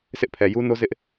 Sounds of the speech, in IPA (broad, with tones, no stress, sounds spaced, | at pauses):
sʰ ɪ˦ ʔ pʰ ɛ˨ j u˦ n o˦ z ɪ˦ ʔ